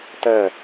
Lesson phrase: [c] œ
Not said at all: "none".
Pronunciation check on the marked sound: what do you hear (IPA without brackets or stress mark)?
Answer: t